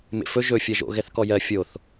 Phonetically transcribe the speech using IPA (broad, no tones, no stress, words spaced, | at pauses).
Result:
mḛfɵ ʒɵ fʲɜʒo̰ ɣɛθkɔjɜ fʲoθ